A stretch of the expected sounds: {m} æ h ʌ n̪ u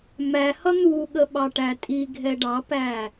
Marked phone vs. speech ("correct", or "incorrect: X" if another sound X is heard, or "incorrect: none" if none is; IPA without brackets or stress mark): correct